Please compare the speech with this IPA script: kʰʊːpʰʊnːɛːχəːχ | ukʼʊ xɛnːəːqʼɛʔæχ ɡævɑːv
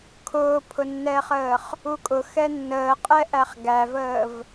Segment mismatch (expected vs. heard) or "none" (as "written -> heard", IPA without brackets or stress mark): ɑː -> əː